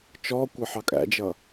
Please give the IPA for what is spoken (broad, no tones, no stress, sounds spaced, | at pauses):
t͡ʃ ɔ kʷ ʌ ħ ɑ kʼ æ̰ d͡ʒ ʌ